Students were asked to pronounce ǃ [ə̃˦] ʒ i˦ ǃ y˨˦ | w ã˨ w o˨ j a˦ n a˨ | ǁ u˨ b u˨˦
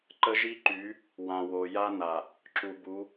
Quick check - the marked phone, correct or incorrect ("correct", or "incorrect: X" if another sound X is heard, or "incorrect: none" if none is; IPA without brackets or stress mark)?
incorrect: ə˦